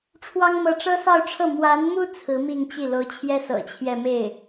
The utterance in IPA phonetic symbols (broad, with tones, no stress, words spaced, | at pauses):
ʈ͡ʂʰwɑ˥ŋ mɤ˥˩ ʈ͡ʂɤ˥sɑ˥˧ʊ̯ʈ͡ʂʰɤ˥˩ mwa˧˥nmu˥ t͡sʰɹ̩˧˥mi˥˧ŋt͡ɕi˥˩ lo˧˥ʊ̯t͡ɕʰjɛ˥ sɤ̰˨˩t͡ɕʰjɛ˥˧ me˥˩ɪ̯